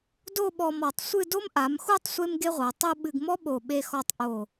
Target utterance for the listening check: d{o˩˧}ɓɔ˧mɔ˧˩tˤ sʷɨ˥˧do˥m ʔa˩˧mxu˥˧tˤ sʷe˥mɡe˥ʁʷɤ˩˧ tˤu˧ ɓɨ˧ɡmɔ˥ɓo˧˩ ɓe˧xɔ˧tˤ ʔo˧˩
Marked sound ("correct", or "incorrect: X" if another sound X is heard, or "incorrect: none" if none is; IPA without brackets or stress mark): incorrect: o˥˧